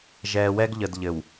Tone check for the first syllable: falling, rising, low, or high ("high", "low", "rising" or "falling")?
low